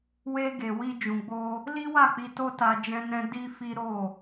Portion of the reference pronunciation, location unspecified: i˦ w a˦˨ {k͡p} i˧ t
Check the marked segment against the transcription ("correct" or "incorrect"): correct